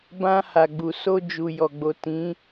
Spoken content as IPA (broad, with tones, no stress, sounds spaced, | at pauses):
b ã˧ h a˨ ɡ͡b u˨ s o˧ d͡ʒ u˨ j ɔ˨ ɡ͡b o˨ t ĩ˨˦